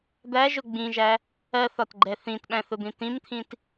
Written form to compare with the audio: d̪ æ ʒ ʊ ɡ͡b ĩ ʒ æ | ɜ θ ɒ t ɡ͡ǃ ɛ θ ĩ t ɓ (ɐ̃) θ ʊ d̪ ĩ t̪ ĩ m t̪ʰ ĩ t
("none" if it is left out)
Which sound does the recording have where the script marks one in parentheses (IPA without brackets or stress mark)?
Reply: æ̃